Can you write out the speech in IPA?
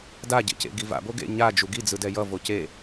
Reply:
d a ɟ ḛ c ḛ ɡ i v a̰ b o ɡ ḛ ɲ a d͡ʒ u ɡ i d͡z ɯ d ɛ j ʌ v o c e

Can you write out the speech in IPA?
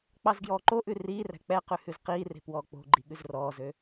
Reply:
k͡p ɑ z ɡ j ɔː ǃ o ʔ ʉ r iː r æ̤ k͡p ɛ q ʉ h ʉ z q iː r e̤ p w ɔː k͡p o̤ ɡ͡ǃ i ɠ ʉ z r ɔː z ø

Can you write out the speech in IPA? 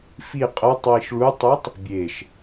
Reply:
f i qʼ ɤ tˤ w i ʃ ɭ u tˤ ɯ tˤ | bʲ e ʃ

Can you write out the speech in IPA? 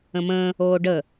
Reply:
ə̃ m ə̃ː | oː ɖ ə

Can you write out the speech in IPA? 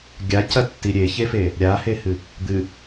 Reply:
ɡʲ a c ɐ tː i ɾʲ e ç e f e | ɾʲ a h e h ɨ | d̪ ɨ

